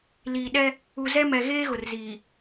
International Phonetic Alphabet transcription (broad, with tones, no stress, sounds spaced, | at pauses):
l iː˨ ɗ ɛ˦ | u˨ z ɛ˦ m ɛ˨ ɣ eː˦ ɣ ʊ˨ r z iː˨